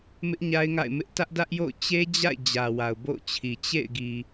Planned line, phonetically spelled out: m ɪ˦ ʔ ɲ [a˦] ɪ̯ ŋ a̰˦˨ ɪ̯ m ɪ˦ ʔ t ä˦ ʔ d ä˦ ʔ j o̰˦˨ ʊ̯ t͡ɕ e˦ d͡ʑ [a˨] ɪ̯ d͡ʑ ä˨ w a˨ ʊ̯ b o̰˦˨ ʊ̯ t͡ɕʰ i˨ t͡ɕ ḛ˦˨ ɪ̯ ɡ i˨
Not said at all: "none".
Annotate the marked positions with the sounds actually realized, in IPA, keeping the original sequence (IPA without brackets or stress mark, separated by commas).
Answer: a˦, a̰˦˨